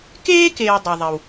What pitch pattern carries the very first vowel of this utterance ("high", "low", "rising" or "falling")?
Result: high